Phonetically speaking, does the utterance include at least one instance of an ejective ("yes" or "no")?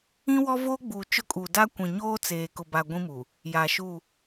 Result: yes